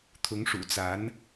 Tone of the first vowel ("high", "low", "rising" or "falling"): rising